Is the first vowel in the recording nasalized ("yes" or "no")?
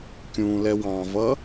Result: yes